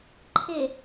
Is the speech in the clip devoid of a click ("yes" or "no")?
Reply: no